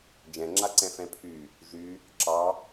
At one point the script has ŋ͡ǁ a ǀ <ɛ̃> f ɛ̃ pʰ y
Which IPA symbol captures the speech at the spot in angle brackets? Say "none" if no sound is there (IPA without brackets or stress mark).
ɛ̃